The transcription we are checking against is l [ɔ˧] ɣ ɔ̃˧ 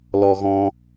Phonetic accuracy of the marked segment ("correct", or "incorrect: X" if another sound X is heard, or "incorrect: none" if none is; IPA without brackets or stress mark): correct